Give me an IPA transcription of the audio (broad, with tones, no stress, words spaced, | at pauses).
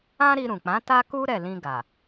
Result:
ã˦ɾi˧ɾũ˨k͡pã˨˦ ta˦ku˦ ɾɛ˦˨ lĩ˧ɡa˨